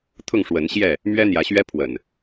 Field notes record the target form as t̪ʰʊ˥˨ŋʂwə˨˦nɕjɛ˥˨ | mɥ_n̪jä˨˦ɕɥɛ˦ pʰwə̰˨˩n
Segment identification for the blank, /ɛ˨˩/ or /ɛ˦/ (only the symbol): ɛ˦